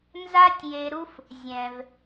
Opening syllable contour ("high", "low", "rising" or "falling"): high